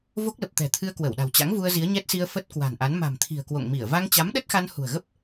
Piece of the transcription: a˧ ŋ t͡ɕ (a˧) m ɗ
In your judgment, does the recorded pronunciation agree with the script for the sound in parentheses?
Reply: no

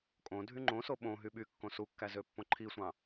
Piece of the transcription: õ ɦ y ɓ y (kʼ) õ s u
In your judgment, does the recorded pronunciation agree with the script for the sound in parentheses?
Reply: no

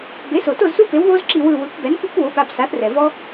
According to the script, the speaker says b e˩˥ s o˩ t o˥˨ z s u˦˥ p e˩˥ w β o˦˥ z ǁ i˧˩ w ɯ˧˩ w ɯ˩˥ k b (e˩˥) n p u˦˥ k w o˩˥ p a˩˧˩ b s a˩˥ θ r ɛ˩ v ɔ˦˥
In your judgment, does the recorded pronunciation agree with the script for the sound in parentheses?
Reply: no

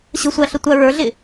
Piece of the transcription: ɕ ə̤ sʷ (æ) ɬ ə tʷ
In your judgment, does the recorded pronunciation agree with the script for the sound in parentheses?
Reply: yes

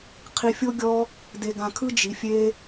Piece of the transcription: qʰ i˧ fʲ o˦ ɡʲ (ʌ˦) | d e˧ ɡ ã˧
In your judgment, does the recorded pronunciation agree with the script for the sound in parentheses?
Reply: no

